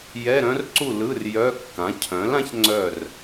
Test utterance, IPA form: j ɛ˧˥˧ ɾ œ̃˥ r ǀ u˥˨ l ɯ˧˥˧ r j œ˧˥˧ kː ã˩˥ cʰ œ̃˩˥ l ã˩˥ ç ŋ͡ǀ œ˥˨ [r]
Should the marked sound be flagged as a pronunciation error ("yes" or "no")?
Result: no